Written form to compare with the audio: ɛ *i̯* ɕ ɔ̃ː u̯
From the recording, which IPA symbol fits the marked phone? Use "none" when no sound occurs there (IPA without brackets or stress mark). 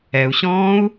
u̯